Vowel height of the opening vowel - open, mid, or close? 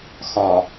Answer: open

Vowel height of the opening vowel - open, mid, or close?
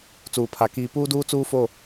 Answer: close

